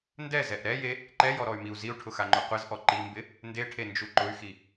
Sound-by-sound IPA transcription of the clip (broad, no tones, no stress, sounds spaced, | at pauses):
n d ɛ z ɛ ʔ ɾ ɛ j e | ǃ ɛ j ɔ ɾ ɔ y̯ m i u̯ z i u̯ ʈʰ ʊ x a ŋ͡ǃ o qʷ ɪ z ʔ ɔ ǃ i m b ɪ | n d e ʈʰ e n d͡ʒ u ǃ ʊ y̯ x i